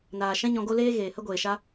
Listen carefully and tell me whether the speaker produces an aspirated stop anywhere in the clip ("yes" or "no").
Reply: no